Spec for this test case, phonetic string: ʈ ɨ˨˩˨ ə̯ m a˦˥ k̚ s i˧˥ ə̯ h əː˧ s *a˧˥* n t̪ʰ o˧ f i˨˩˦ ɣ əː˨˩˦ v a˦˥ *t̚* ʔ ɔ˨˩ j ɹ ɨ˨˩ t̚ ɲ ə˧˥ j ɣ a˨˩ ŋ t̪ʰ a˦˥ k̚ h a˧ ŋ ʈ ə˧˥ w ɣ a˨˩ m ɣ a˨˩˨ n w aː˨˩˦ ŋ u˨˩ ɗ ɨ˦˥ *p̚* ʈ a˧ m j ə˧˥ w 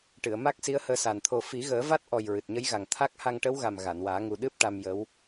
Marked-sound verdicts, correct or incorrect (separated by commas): incorrect, correct, correct